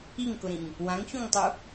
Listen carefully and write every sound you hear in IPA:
iŋkʊɾĩŋ | wãŋçũŋtˤu

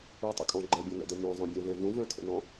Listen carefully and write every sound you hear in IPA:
utˤə̰kʼɔ̃ ɡ͡ǃɛbʲɔ̃nɛ̰dɛ mœ̃zˤœ̃bʲœ̃vɛ̃ vũvœ̃tʰə̰nɔ̃

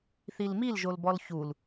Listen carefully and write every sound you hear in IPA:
θilmil ʒolbɔlçul

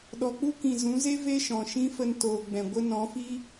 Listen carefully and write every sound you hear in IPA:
ɗɔ˨k͡pu˦kĩ˨zũ˨˦ ze˦ ve˦ʃɔ̃˨ ʃĩ˦fə˧n toː˨ɡ͡bɛ̃˨ ɡʷə˧nɔ̃˨˦fi˦

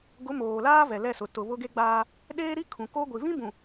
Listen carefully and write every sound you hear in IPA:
ɡʊ˨˦ moː˨laː˦ vɛ˨lɛ˦˨sʊ˨ tʊ˨ βʊ˦ɡe˦ɡ͡baː˦ | ɗeː˦ɾi˦kʰũ˨ko˦ ɡʷi˨vĩ˦bũ˨

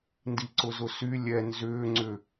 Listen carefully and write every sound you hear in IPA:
ndiǀʊzʊsy lʲɛ nzʏː ŋ͡ǀʏ

